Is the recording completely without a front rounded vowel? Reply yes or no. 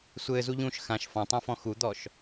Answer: yes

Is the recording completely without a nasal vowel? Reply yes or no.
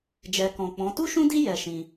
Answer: no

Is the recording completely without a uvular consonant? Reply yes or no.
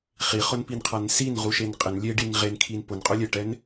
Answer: no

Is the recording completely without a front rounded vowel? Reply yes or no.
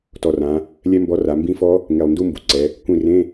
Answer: yes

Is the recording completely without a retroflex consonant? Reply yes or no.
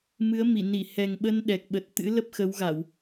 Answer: yes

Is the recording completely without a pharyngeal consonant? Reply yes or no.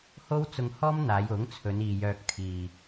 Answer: yes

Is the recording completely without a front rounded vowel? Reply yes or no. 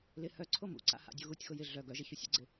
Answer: no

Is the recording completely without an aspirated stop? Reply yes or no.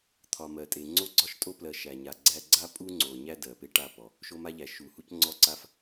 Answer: no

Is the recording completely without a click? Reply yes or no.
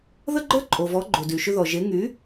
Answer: no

